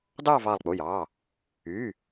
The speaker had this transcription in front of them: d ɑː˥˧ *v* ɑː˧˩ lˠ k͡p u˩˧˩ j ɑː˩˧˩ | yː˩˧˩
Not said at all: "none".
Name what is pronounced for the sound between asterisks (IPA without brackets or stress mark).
v